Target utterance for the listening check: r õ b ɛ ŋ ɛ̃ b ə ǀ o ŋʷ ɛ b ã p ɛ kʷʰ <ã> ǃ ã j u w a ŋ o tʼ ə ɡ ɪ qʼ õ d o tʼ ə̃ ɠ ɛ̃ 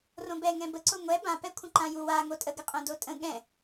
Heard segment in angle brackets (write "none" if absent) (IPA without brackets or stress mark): ə̃